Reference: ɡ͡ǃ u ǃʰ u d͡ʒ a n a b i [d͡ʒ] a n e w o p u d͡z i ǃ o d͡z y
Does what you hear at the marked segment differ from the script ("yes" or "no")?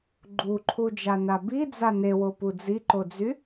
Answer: yes